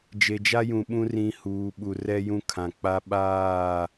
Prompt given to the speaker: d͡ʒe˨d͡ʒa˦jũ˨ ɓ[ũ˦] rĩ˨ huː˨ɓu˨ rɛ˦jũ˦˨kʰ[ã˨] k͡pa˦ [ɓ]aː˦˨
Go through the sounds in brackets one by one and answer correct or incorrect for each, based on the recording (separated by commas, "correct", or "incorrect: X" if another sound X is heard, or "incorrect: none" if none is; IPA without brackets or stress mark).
correct, correct, correct